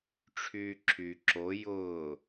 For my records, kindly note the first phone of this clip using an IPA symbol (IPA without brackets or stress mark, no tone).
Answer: ʈ͡ʂʰ